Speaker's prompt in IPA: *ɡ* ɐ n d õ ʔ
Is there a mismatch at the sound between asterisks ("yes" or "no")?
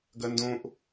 no